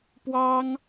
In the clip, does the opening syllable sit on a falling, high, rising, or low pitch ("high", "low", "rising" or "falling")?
high